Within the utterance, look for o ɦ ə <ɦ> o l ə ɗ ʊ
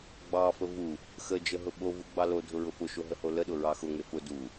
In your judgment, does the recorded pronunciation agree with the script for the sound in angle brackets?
no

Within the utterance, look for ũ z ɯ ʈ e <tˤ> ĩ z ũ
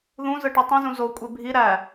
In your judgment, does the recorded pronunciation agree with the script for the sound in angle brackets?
yes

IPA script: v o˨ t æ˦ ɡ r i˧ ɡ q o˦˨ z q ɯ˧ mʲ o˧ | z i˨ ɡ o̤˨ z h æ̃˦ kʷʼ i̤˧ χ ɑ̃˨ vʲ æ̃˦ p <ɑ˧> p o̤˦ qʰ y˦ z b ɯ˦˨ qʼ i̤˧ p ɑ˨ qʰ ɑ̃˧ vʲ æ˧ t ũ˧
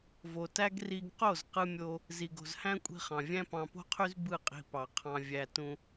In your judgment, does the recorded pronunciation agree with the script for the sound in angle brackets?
no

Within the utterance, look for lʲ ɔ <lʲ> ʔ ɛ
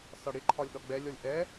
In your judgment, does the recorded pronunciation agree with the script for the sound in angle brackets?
yes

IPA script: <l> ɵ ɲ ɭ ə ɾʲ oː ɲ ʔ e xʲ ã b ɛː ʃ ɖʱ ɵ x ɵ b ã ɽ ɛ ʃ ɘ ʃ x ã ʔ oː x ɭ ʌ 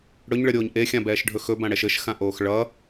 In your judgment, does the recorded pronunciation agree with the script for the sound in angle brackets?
no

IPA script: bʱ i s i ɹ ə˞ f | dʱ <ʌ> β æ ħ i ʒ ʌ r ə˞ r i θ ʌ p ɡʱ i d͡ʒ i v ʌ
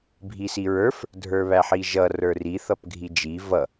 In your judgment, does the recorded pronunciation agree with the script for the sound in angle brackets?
no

